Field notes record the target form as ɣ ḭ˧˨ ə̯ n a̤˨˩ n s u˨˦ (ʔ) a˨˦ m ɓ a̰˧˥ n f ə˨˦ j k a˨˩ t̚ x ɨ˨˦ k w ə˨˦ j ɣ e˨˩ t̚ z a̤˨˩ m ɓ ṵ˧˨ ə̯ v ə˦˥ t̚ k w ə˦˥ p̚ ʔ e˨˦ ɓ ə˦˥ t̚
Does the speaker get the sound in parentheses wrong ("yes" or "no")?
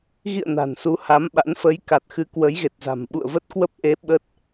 yes